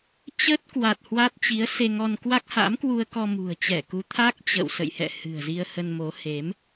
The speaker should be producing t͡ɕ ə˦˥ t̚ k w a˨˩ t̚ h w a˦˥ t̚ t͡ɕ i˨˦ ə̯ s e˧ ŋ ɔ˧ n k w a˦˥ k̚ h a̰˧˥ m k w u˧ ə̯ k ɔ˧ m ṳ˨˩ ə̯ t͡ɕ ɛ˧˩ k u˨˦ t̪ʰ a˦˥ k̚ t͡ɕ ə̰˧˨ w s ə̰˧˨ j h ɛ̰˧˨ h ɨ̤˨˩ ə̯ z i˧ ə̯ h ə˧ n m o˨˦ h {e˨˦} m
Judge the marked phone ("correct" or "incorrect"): correct